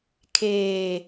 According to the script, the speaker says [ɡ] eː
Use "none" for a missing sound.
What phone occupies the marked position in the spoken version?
kʰ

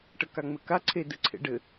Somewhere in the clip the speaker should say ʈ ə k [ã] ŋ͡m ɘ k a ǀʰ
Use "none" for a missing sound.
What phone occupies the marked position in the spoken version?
a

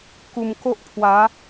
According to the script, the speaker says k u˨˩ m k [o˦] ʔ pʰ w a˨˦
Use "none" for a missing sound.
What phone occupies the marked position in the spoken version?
o˦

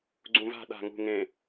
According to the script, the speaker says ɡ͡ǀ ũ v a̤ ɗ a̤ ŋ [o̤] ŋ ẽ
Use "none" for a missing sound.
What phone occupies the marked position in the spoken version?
ṳ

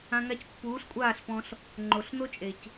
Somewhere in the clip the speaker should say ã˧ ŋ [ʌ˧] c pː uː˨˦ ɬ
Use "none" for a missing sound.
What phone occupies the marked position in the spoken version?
a˧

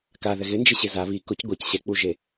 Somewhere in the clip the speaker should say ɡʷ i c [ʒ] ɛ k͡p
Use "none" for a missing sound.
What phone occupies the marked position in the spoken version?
ɕ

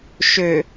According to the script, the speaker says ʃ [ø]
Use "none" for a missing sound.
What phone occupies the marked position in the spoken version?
ø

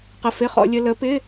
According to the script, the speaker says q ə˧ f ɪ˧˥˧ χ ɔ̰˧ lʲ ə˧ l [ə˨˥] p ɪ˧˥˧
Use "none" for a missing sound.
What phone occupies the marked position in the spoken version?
ə˨˥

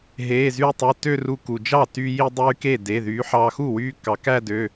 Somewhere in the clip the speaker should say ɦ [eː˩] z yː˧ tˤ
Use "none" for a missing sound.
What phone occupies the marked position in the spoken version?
eː˩˧˩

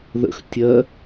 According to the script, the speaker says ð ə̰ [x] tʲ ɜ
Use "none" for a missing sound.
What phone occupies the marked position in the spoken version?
x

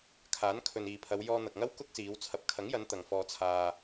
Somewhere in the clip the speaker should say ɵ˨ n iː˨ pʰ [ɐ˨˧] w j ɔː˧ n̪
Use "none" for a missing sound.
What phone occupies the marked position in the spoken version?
ɐ˨˧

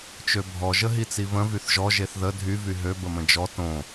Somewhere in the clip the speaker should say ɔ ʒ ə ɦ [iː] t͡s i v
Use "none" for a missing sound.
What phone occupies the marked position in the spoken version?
i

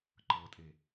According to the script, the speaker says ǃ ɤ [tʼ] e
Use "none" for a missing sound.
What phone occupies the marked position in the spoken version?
tʼ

